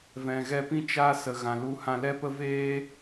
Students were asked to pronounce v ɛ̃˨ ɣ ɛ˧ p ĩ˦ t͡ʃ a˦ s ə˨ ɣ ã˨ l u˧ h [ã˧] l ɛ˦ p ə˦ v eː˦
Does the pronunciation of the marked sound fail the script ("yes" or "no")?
no